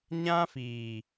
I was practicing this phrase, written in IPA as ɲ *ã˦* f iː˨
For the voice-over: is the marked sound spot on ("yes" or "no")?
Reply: yes